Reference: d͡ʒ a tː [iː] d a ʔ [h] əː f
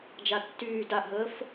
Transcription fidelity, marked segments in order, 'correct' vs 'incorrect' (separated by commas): incorrect, incorrect